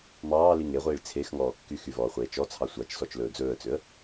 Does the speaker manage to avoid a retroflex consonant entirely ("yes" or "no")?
no